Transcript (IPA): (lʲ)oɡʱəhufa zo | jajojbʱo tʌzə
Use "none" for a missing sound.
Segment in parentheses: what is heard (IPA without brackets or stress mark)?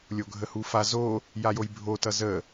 lʲ